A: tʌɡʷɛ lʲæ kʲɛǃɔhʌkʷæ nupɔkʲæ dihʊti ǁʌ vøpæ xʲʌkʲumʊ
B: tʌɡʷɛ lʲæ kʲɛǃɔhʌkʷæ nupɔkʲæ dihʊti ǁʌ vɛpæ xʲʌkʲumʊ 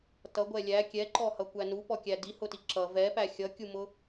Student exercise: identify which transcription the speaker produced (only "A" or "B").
B